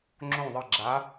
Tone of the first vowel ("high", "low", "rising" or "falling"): falling